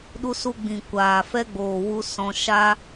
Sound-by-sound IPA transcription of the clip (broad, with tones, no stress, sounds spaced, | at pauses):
ɗ u˧ s u˧ ɡ͡b ĩ˨ kʷ aː˨ f ɛ˦ ɡ͡b oː˨ w u˧ s ɔ̃˧ ʃ a˦